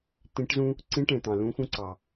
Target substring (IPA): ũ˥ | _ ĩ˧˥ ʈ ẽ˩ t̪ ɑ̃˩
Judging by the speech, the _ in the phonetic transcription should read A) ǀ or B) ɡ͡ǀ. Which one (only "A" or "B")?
A